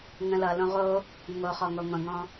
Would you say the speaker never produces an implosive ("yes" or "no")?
yes